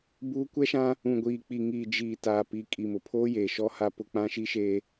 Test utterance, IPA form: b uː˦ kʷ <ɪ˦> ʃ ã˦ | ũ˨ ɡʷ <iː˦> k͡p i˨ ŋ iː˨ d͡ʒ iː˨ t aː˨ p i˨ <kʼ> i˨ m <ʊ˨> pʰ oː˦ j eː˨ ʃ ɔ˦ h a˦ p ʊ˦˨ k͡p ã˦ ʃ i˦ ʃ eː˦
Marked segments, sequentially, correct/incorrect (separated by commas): incorrect, incorrect, correct, correct